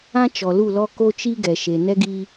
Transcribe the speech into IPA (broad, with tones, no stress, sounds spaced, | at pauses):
ã˦ t͡ʃ ɔ˨ l u˦˨ l ɔ˦ k o˦ t͡ʃ i˦ ɡ ɛ˨ ʃ e˨ n ɛ˦ ɡ iː˦